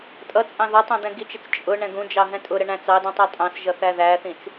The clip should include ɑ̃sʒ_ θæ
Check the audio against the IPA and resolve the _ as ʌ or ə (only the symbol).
ʌ